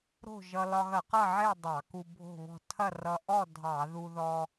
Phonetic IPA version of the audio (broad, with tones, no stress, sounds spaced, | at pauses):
ɾ o̤˥˨ ʒ ʌ˧ l ɒ˧ ɣ ɐ˧˩˧ q ʌ˥˨ ʕ e˥˨ dˤ ɑ˧˩˧ k u˧ bʱ o̤˥˨ β ɔ̤˥˨ tʰ ɐ˥˨ r ʌ˧ ʔ ɔ˥˨ dʱ ɑ˧˩˧ ð u˧ ð ɔ˧